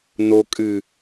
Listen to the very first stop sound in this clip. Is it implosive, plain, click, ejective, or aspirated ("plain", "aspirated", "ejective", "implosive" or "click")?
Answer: ejective